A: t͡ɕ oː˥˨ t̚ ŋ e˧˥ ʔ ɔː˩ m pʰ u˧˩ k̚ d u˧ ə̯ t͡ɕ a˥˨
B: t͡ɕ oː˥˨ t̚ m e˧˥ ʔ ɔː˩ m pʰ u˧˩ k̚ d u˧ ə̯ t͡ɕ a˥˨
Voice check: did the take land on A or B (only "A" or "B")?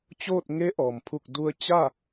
A